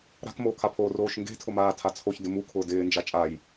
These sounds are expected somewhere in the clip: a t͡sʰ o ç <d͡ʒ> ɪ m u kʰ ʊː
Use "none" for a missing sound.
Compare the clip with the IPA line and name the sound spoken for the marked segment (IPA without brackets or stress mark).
d